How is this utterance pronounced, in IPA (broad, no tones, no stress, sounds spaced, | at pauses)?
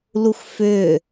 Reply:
l u x f ʏ